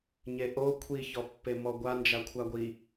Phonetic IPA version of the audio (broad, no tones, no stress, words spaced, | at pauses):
ɲeʔo kʷʰiçɔpːe mɔɡʷa nd͡ʒakʷʰaɡʷi